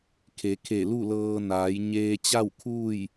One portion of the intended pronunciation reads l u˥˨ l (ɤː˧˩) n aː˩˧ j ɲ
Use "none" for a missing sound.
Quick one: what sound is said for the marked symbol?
ɤː˧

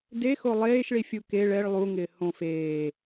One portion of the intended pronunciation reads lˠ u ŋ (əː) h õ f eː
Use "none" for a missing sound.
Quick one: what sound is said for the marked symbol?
ɪː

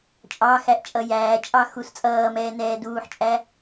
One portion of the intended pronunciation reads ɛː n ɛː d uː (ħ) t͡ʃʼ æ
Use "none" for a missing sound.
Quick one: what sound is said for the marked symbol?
ħ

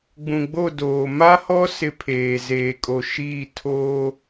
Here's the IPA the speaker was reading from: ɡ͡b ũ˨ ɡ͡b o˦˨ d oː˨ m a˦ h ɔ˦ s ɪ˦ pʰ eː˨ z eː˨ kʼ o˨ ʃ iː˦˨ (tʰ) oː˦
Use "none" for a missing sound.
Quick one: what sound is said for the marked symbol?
tʰ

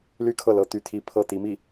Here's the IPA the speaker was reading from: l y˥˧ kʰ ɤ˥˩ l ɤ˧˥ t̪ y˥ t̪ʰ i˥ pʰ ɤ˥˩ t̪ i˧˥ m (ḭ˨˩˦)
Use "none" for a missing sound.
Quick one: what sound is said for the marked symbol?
i˥˩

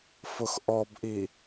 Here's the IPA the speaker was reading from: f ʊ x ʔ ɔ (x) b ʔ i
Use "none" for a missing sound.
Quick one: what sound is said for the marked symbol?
none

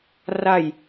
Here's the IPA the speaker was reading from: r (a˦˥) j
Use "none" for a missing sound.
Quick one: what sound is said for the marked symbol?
a˧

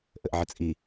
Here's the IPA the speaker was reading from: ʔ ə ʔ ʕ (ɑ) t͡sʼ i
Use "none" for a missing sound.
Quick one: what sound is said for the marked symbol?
ə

